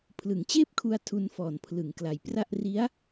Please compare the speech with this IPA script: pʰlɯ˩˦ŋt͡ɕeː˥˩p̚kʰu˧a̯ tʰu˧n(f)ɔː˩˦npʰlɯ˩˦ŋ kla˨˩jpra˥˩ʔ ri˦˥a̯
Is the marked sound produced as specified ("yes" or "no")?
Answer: yes